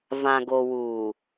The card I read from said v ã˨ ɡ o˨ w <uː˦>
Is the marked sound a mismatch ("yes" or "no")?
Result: yes